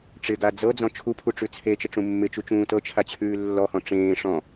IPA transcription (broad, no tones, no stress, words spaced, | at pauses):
ʈ͡ʂɪɡa d͡zɤd͡zɔ̃ t͡ʃʰupʰu ʈ͡ʂʉt͡sʰet͡ʃɪ ʈ͡ʂũmːɪt͡ʃut͡ʃũː tɤt͡ʃʰa t͡ɕʰʉːlːɔhɔ̃ ʈ͡ʂẽː ʂɔ̃